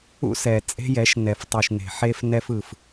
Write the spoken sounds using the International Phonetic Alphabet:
ṵ˦sɛ˨ t͡sʼe̤˦jɛ˨˦ʃ nɛ˨ftˤu˨ʃne̤˨ħe˧f nɛ˧fɯ˨f

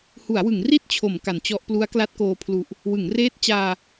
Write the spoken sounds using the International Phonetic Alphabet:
hu˩˦a̯wɯ˩˦ŋ ri˥˩t̚t͡ɕʰo˩˦m ka˩˦nt͡ɕɔ˦˥ʔ plu˦˥a̯kla˦˥t̚koː˧pʰlu˨˩ʔ | wɯ˩˦ŋ reː˦˥t̚t͡ɕaː˧

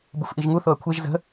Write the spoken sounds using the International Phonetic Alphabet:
bufʔiʒŋu θoɐ̯kʷʰeʒ zə̤

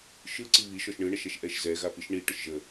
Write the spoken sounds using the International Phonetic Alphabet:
ʃɯǀi βi ʃɔʃɳɯɳəʃɛʃ ʔɛʃzɛ ɣapiʃɳi ʈəʃʒə

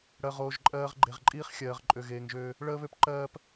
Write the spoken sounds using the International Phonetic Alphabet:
ɽɜ˨ʁoː˨ʒ ǃʼɜː˦ʁ ɡ͡ǃe˨ʁǃʼiː˦χ xʲɜː˨ʁǃʼø˨ɣeː˨ŋʒøː˦ | ɭəː˦βø˦p ǃɜː˦p

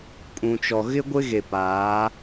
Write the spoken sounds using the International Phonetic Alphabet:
kʼũ˨t͡ʃɔ˨ ɣɪ˦ɡʷɪ˦ɣe˨paː˨˦

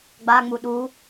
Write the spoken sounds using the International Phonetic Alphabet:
ɡ͡baŋ͡mu ɗu

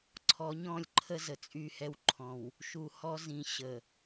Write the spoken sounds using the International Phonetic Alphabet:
ǀʰɔ˨˦ɲɔ̃˦˨lʲǃʰə˦ zə˨t͡sʼy˦˨hɛ˦wǃʰɔ̃˨w | ʃu˨hɔ˦ zĩ˨ ɕə˨

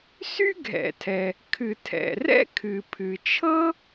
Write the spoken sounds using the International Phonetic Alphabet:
sy˥ɡʱɛ̰˩tʰɛ˩ | kʰɨ˩tʰɛ̰˩rɛ̰˥ kʰɨ˩pʰɨ˩t͡ʃʰɤ˥

